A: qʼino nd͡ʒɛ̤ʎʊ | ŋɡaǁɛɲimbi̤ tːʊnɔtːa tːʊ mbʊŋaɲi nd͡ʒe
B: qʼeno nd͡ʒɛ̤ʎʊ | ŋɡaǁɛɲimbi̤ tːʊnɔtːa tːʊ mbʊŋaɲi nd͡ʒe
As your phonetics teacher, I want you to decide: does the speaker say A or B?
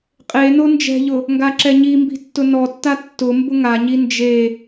B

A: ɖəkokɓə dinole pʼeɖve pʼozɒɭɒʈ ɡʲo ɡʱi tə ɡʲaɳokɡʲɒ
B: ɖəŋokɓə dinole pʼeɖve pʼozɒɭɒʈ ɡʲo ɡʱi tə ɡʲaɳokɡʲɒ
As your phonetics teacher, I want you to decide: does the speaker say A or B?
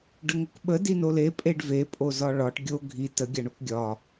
B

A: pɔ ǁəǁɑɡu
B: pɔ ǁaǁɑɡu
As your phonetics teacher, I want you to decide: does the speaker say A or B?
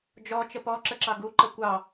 A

